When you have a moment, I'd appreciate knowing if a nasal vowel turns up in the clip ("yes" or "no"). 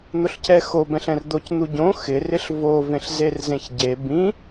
yes